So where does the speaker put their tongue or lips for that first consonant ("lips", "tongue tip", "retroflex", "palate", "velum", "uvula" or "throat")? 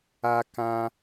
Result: velum